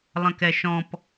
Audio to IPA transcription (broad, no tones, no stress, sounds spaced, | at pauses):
lˠ ə̃ k ɛ ʃ ɔ̃ p